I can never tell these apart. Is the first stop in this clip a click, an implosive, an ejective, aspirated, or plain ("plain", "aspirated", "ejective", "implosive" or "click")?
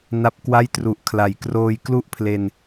plain